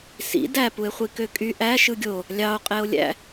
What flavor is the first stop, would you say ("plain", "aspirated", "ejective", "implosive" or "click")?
plain